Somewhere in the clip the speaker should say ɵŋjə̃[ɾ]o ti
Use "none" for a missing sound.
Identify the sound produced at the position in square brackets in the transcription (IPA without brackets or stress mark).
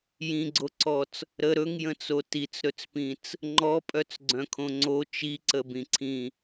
t͡s